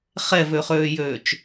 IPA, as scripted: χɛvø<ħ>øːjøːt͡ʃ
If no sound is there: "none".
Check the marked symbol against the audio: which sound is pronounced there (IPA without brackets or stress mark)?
χ